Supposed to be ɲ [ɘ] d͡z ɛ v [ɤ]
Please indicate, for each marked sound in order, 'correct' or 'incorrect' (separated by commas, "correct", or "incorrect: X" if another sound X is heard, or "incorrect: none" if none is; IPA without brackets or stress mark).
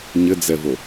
correct, incorrect: o